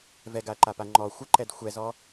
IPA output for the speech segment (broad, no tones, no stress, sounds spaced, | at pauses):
v ɛ ɡ a ɐ̯ ǃ a p a ŋ͡ǃ ɔ xʷ ə ǃ ɛ d xʷ ɛ z ɔ